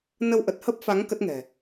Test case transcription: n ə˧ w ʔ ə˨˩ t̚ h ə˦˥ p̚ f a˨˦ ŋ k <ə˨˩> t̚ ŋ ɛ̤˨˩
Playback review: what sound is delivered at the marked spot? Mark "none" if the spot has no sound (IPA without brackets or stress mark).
ə˦˥